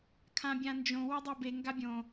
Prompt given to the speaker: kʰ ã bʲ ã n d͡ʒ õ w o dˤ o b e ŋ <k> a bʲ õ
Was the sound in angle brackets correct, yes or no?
no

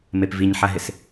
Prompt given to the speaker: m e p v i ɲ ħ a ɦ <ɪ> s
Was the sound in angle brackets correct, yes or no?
yes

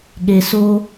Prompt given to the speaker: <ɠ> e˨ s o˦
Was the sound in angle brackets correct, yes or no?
yes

